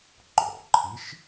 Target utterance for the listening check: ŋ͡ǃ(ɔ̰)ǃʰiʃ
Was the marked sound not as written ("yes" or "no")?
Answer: no